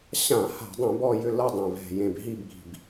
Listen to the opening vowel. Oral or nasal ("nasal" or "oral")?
nasal